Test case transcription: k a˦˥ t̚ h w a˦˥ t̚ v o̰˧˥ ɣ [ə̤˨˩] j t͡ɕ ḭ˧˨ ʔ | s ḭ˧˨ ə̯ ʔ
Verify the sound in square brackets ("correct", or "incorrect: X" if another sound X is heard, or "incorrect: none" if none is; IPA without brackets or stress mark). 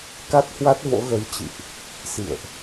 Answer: incorrect: ə˨˦